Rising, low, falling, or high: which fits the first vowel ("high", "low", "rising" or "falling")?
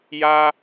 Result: high